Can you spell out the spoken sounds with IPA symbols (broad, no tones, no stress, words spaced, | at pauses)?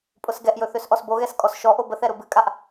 pʼʊsɡɛʔjɵ θøsʔɔsboɣɛs kʼɔsʃɔʔo bəθɛ ɾʊbɨkʼaʔ